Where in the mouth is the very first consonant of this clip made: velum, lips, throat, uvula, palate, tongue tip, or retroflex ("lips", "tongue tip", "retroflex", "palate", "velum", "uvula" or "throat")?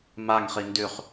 lips